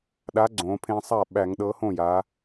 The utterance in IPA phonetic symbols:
ɗ a˨˥ ɡ͡ǀ õ˩˧ pʰ ẽ˧ sˤ a˥˩ ɓ æ˧˩˧ ŋ ɗ ɤ˨˥ h õ˥˩ j a˩˧

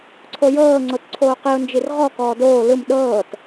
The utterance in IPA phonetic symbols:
ǀʰ o j ɤː ŋ͡ǀ o t ǀʰ oː q i ʊ̯ n d͡ʒ i r ʁ ɔ k ɔː d oː l ɯ m ɗ ɤː t

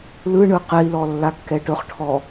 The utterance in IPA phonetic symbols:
l ɯ ɳ ɯ q ɛ i̯ l ɔ lː a kː ɛ ʈ ɵ χ ʈʰ ɔ

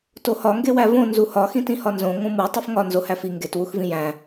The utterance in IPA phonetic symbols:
t o h ɒ ŋ ɡ e w æ v õ n z u h ɒ x ĩ t ĩ h ɒ n z õ ŋ õ m u tˤ u f ŋ ɒ n z o h æ f i ŋ ɡ e t w u x v ĩ j æ̃

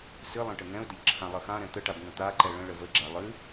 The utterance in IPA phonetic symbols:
s ɨ lˠ ɛ̃ ʈ ə ŋ ɛ̃ ʊ̯ d ə ʎ ǁʰ ã lˠ ə x ã ɾ ɛ̃ t̪ ə ʈ a b ŋ ə̃ t̪ a ǃ ɛ ɭ ə̃ ɭ ə v ə ɡ͡ǁ a lˠ ɨ

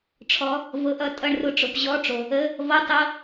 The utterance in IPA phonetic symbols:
ʈ͡ʂʰ ɔ˨˦ | v ɤ˨ ʔ ʌ˨˦ tʼ ʌ˥˩ ɳ r ʊ˥˩ ʈ͡ʂ ʊ˨˦ p ʑ ɔ˧˥˧ ʈ͡ʂ o˨ | ə˧˥˧ | v ɔ˧˥˧ tˤ ɤ˧˥˧

